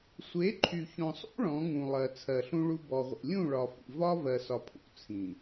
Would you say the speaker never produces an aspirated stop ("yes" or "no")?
no